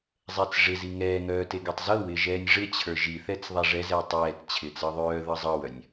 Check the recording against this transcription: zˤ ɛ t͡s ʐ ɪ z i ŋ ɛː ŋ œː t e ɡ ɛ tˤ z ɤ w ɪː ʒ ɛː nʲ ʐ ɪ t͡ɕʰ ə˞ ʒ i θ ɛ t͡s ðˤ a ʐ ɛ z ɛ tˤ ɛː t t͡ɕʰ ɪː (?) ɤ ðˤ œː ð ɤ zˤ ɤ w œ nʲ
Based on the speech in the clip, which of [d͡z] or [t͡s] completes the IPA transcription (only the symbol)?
t͡s